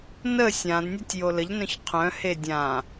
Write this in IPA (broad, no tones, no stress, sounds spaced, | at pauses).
n ə sʲ ã d nʲ a tʲ j o l ə ʎ n œ̃ ç qʰ œ̃ h e dʲ ã